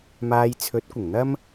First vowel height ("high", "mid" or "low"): low